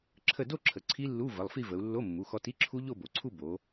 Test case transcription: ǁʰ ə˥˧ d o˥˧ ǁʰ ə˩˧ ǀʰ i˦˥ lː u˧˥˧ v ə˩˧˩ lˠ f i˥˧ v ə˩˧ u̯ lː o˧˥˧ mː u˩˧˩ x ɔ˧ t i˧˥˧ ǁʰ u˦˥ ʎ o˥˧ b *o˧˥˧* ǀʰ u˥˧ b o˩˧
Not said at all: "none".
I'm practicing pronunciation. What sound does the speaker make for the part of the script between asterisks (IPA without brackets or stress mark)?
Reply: o˩˧